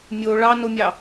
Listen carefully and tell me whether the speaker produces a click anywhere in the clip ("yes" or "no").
no